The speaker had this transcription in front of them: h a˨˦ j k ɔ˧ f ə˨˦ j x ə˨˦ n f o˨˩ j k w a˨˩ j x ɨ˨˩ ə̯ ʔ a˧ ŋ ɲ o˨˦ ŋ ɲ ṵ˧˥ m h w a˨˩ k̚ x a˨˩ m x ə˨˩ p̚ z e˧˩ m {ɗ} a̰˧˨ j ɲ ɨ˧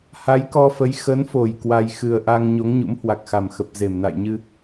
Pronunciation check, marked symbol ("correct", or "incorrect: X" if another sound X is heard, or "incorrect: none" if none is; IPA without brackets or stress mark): incorrect: n